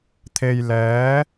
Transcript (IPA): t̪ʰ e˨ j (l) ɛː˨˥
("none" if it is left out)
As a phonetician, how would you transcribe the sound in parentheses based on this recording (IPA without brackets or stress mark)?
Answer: l